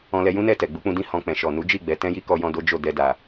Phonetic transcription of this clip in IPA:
ɔ̃˧ l ɛ˧ j ũ˦ n ɛ˦˨ t ɛ˨ ɡ͡b u˨˦ k͡p ũ˧ d ĩ˦ h ɔ̃˧ k͡p ɛ̃˨ ʃ ɔ˨ n u˨˦ d͡ʒ i˦˨ ɡ͡b ɛ˨˦ t ɛ̃˦ j i˦ k ɔ˧ j ɔ̃˧ d o˦ d͡ʒ o˦˨ d ɛ˧ d a˨

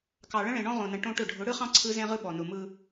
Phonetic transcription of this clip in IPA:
k ɑ˨ ɭ ə̃˦ ɭ ẽ˨ ɳ ɔ̃˦ ʁ õ˨ n ə̃˨ ʈ õ˦ ʈ ʊ˦˨ ɖʱ ʊ˨˦ ɽ ɯ˦ χ ɑ̃˦ ǀʰ ɯ˦ z ẽ˦ ʁ ɯ˦ ɓ ɔ˨ n ʊ˨ m ɯ˦

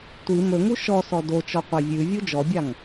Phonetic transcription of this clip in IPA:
tʷ i m ɵ ŋ u ʃ ɔ s ɔ d o t͡ʃ ɔ qʷ a vʲ ʉ vʲ u d͡ʒ ɔ bʲ a ŋ

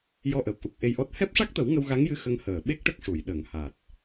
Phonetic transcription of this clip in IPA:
j ɔ˧ ʔ əː˨˩ p̚ ʔ u˨˩ k̚ ʔ e˧ j ʔ ɔ˦˥ t̚ h ɛ˦˥ p̚ ʂ a˦˥ k̚ t̪ ə˨˩˦ w ŋ ə˧ w ɣ a˧˥ ŋ j ɨ˧˥ x ə˧˥ ŋ h əː˨˩ ɓ e˦˥ k̚ ʈ ə˦˥ k̚ ʂ u˨˩˨ j ɗ ə˨˩˨ ŋ h a˨˩ t̚

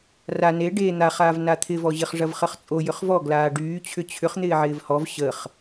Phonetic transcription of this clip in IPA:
r a n e ɖ e n̪ a χ aː v n a t̪ʰ ɪ v ɔ ʑ ɪ χ ʐ ɐ v χ ə χ t͡sʼ o j ʏ χ v ɔ ɡ l aː ɖ yː t͡ɕʰ ʏ t͡ɕʰ ʏ χ n̪ ɪː ʕ ɪː v h ɔ v ɕ ə χ

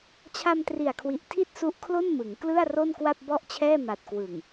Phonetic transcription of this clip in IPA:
t͡ɕʰ a˧ m t r i˨˩ a̯ kʰ w i˨˩ ʔ tʰ i˥˩ t̚ s u˦˥ ʔ kʰ l o˥˩ n m ɯ˩˦ ŋ k l ɯ˥˩ a̯ r o˥˩ n k w a˥˩ p̚ b ɔ˥˩ ʔ t͡ɕʰ ɛː˥˩ m a˨˩ t̚ k w ɯ˨˩ ŋ

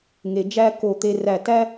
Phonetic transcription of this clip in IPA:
ŋ e˨ d͡ʒ æ˦ k o˦˨ t̪ e˦ r æ˦˨ t æ˦

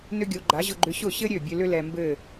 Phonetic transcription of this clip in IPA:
n ʏ˥ ɡʲ o˩˥ ɡ͡ǃ a˩˥ ʑ ʊ˧ ɡ͡ǃ ʏ˧ ɕ ʊ˥˩ ɕ ɘ˥ ɾʲ ø˥˩ bʲ ø˧ l ʏ˥ l ɛ˧ m b ɘ˥˩

